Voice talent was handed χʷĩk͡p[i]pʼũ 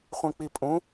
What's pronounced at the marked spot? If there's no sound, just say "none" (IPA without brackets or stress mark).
i